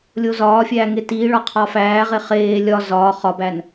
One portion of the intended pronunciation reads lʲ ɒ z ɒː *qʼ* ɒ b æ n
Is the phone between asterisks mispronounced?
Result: yes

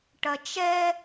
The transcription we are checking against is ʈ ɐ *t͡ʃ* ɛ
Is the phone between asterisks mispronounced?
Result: no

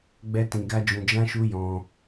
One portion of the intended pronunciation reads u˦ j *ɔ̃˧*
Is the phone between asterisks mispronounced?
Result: no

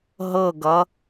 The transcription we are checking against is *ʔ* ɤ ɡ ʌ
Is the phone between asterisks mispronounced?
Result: yes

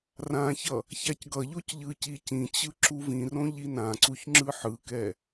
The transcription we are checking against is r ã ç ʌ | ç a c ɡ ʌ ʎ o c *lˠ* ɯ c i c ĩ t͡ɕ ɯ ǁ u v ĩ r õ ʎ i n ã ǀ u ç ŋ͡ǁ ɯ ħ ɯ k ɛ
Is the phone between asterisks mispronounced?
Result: yes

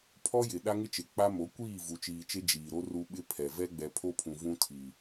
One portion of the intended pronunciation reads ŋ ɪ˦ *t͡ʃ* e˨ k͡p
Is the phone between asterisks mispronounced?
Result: no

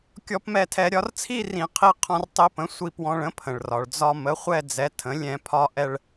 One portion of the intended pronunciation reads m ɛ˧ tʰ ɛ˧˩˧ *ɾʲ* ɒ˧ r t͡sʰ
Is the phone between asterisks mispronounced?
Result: no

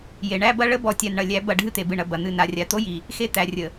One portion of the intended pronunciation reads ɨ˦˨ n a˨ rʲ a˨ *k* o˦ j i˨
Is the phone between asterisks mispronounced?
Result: yes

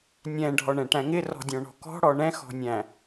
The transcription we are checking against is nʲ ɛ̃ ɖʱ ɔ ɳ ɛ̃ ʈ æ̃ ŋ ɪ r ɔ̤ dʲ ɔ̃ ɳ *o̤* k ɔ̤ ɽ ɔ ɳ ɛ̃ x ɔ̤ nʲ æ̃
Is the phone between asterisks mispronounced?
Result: yes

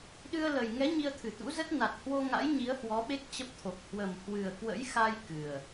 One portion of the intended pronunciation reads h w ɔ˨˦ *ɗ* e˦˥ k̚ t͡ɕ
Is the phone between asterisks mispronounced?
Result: yes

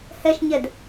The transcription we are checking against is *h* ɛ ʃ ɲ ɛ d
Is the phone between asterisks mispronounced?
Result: no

